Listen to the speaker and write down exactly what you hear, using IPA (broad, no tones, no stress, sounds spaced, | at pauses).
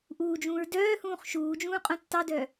ʔ uː d͡ʒ ũː ɹ d œː h ũː χ ʃ uː d͡ʒ ũː qʼ õ tː ɑ d œ